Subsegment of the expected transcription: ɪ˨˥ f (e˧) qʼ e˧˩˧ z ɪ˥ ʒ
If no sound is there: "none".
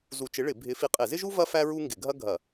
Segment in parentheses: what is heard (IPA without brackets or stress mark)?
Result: i˧